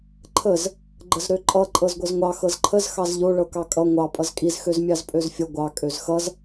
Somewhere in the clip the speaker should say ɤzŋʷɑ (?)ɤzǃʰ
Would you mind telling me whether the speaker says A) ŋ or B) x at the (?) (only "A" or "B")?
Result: B